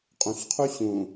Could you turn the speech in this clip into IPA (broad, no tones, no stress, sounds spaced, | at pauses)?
qʼ ũ ɬ qʰ u ɕ ũ